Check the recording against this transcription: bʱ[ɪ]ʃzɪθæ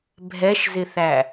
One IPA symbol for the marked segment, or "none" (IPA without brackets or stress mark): ɛ